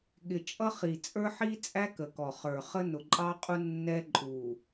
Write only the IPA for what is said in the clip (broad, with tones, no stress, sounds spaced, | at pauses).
ɠ ɪ˨ t͡ʃʼ ʌ˦ χ i˨ t͡sʼ ə˞˦ ħ i˦ t͡sʼ æ˦ k ə˨ k ɔ˨ χ ə˞˨ χ ə˦ n ʊ˨ ǃʼ ɑ˦ qʼ u˦ nː ɛ˦ ǃʼ u˨